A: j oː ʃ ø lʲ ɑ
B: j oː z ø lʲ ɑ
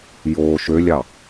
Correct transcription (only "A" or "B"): A